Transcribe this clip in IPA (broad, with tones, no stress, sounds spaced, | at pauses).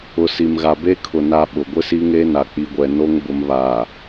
ʊ˨ s i˨ m ɣ a˨ b e˦ kʰ ʊ˨ n a˦ ɓ ʊ˨ ɡʷ ɪ˦ s i˦ ŋ e˦ n a˨ k͡p i˨ ɡʷ ɛ˨ n o˦ ŋ b ʊ˦ m β aː˨